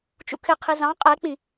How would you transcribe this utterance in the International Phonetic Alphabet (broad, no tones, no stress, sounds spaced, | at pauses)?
t͡ʃ ṵ kʰ ɪ qʰ i z ɑ̃ qʼ ɛ k͡p ĩ